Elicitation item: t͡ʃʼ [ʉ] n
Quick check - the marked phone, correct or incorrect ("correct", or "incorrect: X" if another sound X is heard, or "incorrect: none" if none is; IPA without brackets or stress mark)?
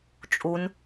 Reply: incorrect: u